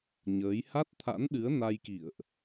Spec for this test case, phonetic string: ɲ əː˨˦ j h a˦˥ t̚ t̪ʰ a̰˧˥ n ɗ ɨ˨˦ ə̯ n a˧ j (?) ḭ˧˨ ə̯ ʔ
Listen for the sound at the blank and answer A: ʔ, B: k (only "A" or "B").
B